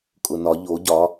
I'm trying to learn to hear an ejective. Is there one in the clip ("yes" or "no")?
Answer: yes